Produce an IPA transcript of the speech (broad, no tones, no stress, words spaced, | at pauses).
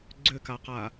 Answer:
ɡ͡ǀʏkaqa